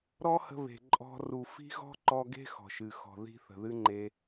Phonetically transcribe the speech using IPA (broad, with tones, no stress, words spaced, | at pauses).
ɾɔ˦hə̤˧ βe̤˨ ǃʼɔ̤˧ ru˨ fi̤˦ɣɔ̤˦ǃɔ˧ɡe̤˦ xɔ̤˨ʃɨ˨ xɔ̤˨ði̤˦ θə̤˨ðɨ˦ŋ͡ǃe˧